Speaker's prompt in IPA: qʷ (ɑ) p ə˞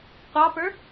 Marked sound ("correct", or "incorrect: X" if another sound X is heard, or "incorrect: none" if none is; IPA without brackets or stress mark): correct